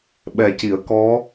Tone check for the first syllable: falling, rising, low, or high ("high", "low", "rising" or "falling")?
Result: low